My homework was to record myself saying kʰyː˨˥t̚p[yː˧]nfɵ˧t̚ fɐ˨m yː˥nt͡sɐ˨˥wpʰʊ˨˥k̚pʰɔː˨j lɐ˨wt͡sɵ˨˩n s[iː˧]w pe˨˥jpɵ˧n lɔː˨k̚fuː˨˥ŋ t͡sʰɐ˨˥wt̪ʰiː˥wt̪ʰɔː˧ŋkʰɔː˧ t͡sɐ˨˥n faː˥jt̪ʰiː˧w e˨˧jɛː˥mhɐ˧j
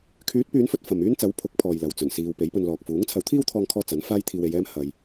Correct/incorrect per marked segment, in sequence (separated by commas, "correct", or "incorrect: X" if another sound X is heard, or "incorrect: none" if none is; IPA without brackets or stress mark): incorrect: yː˨˧, incorrect: iː˨